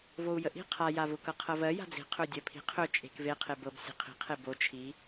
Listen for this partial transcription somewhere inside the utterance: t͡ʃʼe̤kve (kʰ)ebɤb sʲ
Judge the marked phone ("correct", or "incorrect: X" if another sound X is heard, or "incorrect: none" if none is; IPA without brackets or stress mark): incorrect: qʰ